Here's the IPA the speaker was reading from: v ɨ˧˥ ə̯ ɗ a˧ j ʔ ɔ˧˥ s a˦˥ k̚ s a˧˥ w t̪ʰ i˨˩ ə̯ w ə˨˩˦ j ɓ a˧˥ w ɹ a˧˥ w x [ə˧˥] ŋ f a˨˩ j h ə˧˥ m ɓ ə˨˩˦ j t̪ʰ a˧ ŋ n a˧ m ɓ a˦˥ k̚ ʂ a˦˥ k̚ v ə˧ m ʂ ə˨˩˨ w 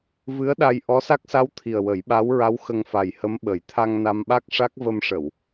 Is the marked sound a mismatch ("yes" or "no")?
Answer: yes